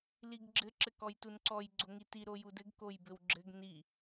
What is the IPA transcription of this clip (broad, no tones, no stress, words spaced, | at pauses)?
liɡɡ͡ǁɘ ǁɘkɔjtunǀɔj ɡ͡ǀoŋiti ɾojudɘɡ kojbɘwɡ͡ǁɘɡ ni